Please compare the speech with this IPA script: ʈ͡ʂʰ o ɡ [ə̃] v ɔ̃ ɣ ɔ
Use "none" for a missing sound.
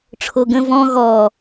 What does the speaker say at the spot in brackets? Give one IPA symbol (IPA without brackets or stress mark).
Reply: ə̃